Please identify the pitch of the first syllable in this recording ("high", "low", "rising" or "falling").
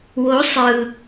rising